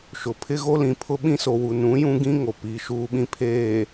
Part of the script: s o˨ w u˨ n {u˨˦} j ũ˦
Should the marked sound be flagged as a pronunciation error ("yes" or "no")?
yes